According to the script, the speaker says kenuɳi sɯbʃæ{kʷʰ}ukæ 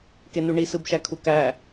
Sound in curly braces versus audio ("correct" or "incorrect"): incorrect